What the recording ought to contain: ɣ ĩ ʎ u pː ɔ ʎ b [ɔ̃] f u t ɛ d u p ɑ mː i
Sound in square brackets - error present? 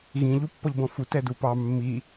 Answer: no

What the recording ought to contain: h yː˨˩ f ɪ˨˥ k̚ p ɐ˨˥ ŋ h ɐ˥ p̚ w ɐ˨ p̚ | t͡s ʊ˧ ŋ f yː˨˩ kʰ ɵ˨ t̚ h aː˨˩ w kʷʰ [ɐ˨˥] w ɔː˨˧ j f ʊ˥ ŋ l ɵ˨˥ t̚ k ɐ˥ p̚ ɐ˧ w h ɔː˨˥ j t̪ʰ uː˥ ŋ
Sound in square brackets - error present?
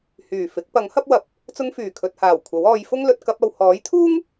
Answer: no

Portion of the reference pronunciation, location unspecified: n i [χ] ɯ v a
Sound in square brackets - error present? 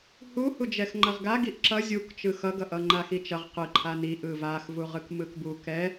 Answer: yes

